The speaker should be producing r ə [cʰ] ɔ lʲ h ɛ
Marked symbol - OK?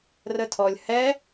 no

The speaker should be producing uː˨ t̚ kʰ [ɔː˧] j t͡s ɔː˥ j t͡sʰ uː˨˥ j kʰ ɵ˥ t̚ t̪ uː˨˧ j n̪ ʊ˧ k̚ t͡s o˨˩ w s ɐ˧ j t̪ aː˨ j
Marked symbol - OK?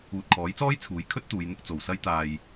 no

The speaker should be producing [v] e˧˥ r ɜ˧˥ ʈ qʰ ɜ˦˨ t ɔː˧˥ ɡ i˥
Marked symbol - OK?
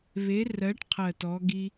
no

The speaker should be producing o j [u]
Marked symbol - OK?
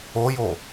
no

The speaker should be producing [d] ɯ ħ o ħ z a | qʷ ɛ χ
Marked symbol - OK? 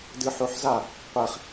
yes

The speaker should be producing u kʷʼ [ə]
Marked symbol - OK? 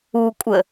yes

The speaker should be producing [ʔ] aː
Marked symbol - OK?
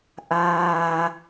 yes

